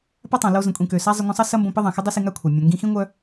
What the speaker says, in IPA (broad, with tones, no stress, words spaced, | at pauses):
pa˥tˤã˩lo˧ zə̃˩kʷʼĩ˩kø˩ sa˥zˤɪ˧ ŋʷə̃˧sˤɐ˥ sɐ˥mbõ˧pə˥ ðˤã˩xɪ˥dˤi˥si˧ ŋa˥kʷʰɐ˩ mʲœ̃˩ŋɡĩ˧xĩ˥ ŋʷœ˧